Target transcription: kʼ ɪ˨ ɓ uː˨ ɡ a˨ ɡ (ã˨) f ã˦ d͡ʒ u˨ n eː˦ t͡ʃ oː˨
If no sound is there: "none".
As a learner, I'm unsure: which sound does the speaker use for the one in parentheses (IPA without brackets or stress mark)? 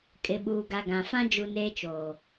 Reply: ã˨